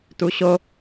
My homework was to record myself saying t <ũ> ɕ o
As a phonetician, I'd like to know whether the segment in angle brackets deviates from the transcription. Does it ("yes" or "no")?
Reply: yes